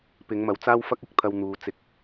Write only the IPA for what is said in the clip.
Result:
p ɪ˨˧ ŋ m ɐ˨ w t͡s aː˥ w f ɐ˥ k̚ ɪ˨ k̚ t̪ʰ ɐ˧ w n̪ uː˨˧ t͡s ɪ˧ k̚

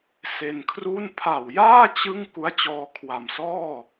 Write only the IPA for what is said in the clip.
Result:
s e˧ n kʰ r u˥˩ n pʰ a˨˩ w j aː˥˩ t͡ɕ ɯ˥˩ ŋ k u˦˥ a̯ t͡ɕ ɔː˧ kʰ w a˨˩ m s ɔː˥˩

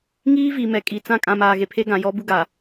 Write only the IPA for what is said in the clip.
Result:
ŋ iː˦ v i˨ m ɛ˨ kʼ i˨ t͡s ã˦ kʼ ã˨ m aː˨ ɣ e˨ pʰ e˦ ɡ ã˨ j ɔ˦ b u˦ ɡ a˨

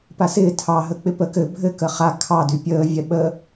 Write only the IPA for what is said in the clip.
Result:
p a s ɪː tʰ ɑ ɦ ə k͡p ɪ p ə k ɘ bʱ ɘ k ə χ a kʰ ɑ d y pʲ əː vʲ ɛ ɓ ə

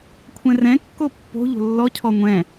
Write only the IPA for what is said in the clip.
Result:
kʷʰ ɛ̃ r ɛ̃ kː o pː o̤ ʎ o̤ lː ɔ cʰ ɔ ŋʷ ɛ̃

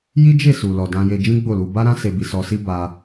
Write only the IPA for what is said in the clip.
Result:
j i˦ d͡ʒ e˦˨ s u˨ l ɔ˨ d ã˧ j e˧ d͡ʒ ĩ˦ ɡ͡b o˦˨ l u˧ b a˦ ɾ ã˦ s e˧ b i˧ s ɔ˧ s i˦ b a˧

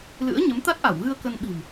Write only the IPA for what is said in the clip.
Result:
l ɨ̰˧˥ ə̯ ɲ ə˨˦ m t̪ a˦˥ t̚ ʔ a˧˩ w ɣ ɨ˧ ə̯ k ə˧ n ɓ i̤˨˩ m

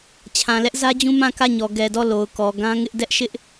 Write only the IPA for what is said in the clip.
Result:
t͡ɕʰ ã˨ l ɛ˦ ʔ z ä˦ d͡ʑ ũ˦ m ã˦˨ k ä˦˨ ɲ ɔ˨ ɡ ɛ˨ d ɔ˦˨ l o˨ ʊ̯ k ɔ˨ ɡ ã˦ ŋ ɪ˦ ʔ d ɛ˦ ʔ ʃ ɪ˦ ʔ

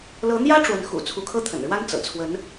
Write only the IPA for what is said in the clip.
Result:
l ɤ˧˥ n̪ j ä˥ ʈ͡ʂ w ə˧˥ n x ṵ˨˩ t͡sʰ u˧˥ kʰ ɤ˥ t̪ʰ ə̰˨˩ n ɻ w a˥ n t͡s ɤ̰˨˩ t͡sʰ w ə˧˥ n

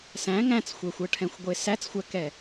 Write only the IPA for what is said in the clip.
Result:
s æ̃ ŋ æ̃ t͡s xʷ ɛ xʷ ɤ ʈʰ ɛ̃ xʷ ɡʷ e s æ t͡s xʷ æ k ɛ

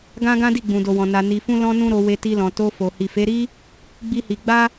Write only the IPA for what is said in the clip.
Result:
ɡ ã˦ ɡ ã˦ d i˦˨ ɡ͡b ũ˨ d o˨ w ɔ̃˨ n a˧ n i˧ f ũ˦ l ɔ̃˦ n ũ˦ ɾ o˧ w e˧ t i˧ l ɔ̃˨ t o˧ f o˨ h i˨ f e˨˦ ɾ i˦ | ɡ͡b i˦ h i˧ ɡ͡b a˦

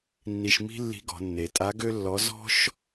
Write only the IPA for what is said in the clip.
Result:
nː i˧ ʃ m i̤˥ lː i̤˧˥ ɡ ɔ̤˩˧ nː e˩˧ tʼ a˧˥ ɡ ø˥ lː ɔ˧˥ z ɔ̤˥ ʃ

